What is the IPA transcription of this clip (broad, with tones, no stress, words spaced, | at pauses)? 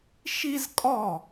ʃi˥zkʼɔ˥˩